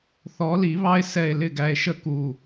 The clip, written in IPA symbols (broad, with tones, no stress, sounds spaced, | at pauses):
θ ɔ˨˦ l i˨˩˦ β ɑ˦ e̯ s ɛ˧˩ e̯ l ɪ˥˩ ɡ æ˧˩ e̯ ʃ ə˥˩ k u˧˩